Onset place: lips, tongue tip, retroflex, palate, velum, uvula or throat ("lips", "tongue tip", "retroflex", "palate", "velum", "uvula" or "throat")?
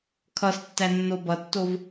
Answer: velum